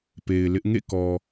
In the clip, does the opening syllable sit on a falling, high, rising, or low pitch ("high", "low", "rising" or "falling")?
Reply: low